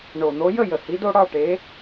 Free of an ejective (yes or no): yes